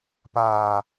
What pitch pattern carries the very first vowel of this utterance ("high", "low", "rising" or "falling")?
low